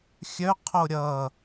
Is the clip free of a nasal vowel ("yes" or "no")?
yes